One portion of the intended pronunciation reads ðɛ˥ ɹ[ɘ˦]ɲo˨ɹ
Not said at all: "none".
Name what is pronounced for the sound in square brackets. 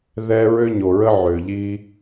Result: ø˦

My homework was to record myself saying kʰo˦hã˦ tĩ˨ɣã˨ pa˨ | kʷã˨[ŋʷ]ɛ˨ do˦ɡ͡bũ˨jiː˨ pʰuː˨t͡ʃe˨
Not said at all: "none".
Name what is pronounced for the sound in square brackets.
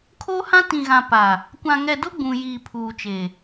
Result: ŋ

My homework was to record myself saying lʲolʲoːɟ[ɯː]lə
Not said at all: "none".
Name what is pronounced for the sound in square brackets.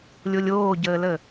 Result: əː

